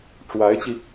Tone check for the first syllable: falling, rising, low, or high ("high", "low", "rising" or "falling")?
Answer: rising